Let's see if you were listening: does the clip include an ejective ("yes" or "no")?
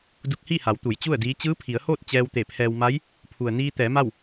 no